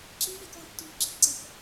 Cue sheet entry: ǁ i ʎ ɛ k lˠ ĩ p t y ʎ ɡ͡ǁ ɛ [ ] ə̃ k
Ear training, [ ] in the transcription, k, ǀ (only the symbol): ǀ